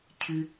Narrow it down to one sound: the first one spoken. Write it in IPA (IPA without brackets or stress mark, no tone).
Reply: cʰ